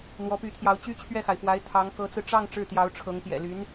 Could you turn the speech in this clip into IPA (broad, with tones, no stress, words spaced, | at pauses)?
n̪wɔ˧˥py˧˥t̪ʰjɑ˧˥ʊ̯ t͡ɕy˥t͡ɕʰɥɛ˥˩xa˩ɪ̯fwa˧˥ɪ̯ t̪ʰɑ˧˥ŋ kɤ˧˥t͡sɹ̩˧ ʈ͡ʂɑ˥˧ŋ ʈ͡ʂɻ̩˥˩t̪jɑ˧˥ʊ̯ʈ͡ʂʰɤ˧˥ŋ pjɛ̰˨˩ly˧˥n